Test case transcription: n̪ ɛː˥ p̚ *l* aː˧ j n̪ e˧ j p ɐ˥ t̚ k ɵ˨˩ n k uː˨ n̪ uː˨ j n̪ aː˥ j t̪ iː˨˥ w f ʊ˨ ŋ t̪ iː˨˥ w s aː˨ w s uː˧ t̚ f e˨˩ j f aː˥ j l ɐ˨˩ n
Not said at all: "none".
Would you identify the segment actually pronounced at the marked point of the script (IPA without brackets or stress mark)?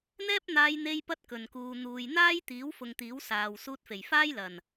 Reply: n̪